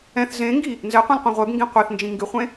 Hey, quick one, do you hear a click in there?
no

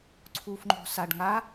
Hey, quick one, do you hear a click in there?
yes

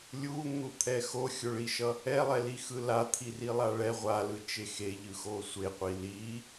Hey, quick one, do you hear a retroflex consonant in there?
yes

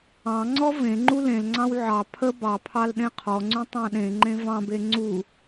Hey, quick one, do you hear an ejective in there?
no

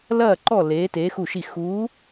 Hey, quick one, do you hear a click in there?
yes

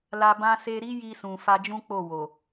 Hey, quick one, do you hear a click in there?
no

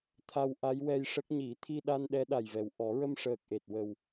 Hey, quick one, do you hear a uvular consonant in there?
no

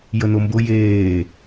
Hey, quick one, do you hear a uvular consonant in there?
no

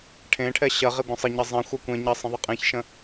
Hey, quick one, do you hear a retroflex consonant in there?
yes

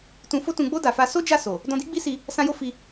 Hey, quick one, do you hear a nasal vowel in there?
yes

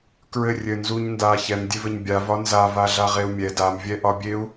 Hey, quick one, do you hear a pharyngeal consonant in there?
no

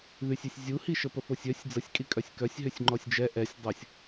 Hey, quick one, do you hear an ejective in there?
yes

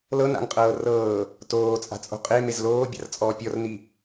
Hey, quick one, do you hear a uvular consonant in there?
yes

